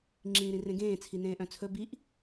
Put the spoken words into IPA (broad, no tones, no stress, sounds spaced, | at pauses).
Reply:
ŋ͡ǁ ĩː ɾ ĩ r ẽ ɡ ẽː t͡sʰ i n ẽː ʔ œ̃ t͡sʰ ɵ b i ʔ